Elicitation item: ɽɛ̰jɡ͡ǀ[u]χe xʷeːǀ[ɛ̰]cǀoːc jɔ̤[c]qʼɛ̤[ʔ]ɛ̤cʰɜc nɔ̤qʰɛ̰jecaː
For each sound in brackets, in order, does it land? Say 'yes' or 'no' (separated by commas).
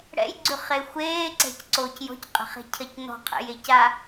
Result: no, no, yes, no